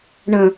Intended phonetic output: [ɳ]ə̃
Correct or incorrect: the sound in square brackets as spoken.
correct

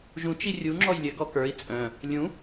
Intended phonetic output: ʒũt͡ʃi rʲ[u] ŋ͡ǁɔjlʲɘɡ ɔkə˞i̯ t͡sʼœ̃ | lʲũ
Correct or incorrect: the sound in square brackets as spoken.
correct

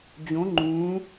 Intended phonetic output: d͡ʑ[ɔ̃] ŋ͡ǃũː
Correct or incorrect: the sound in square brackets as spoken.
incorrect: õ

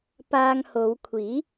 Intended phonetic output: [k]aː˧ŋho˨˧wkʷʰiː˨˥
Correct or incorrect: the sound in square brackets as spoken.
incorrect: p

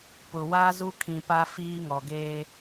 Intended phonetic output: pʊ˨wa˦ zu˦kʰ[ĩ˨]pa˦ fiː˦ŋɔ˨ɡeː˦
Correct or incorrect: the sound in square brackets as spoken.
correct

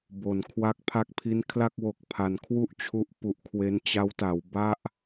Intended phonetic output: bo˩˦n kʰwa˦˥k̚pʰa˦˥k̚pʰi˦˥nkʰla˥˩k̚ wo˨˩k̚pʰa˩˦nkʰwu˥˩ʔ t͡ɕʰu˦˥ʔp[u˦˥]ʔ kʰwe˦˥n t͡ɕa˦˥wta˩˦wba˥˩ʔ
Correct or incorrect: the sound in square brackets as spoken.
incorrect: u˨˩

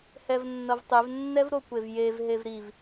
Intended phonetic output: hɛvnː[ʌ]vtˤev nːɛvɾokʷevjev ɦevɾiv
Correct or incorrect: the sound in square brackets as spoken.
correct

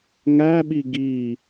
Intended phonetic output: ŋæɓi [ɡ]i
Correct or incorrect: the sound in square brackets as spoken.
correct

